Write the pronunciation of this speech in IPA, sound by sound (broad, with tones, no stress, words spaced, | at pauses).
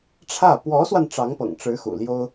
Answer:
ʈ͡ʂʰä˥˩ pwɔ˧˥swa˧n ʈ͡ʂɑ˧˥ŋpɤ̰˨˩ŋʈ͡ʂɻ̩˧˥ xṵ˨˩ljo˥ʊ̯